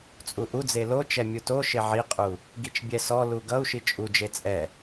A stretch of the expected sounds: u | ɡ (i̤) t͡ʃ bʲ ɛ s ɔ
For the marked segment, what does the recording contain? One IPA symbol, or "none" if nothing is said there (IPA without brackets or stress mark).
i